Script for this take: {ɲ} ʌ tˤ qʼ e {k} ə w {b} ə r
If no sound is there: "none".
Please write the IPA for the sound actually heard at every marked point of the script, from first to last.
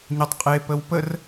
ɲ, p, p

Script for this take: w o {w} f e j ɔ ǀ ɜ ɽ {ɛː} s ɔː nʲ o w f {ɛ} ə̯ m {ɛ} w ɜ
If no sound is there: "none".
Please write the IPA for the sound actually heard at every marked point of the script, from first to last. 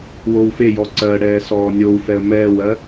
w, ɛː, ɛ, ɛː

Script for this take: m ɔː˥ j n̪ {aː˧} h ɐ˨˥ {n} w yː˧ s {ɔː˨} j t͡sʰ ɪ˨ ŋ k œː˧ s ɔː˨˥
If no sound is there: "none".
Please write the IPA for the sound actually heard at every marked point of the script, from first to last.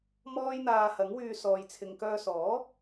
aː˧, ŋ, ɔː˨

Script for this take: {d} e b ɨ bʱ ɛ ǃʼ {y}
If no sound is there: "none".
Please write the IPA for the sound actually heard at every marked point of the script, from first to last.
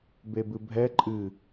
b, ɨ

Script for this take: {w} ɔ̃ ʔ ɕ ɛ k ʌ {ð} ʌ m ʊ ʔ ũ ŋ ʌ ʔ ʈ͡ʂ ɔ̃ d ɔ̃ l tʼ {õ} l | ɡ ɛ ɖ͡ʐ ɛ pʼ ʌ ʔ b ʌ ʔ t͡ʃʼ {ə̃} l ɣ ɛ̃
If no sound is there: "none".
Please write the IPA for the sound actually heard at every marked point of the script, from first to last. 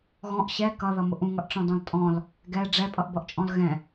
ɣ, ð, ɔ̃, ɔ̃

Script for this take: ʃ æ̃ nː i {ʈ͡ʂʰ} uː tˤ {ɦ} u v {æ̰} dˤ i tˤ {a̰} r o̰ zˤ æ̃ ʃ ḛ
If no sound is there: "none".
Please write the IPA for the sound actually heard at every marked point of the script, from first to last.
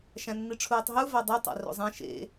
ʈ͡ʂʰ, ɦ, æ, æ̰

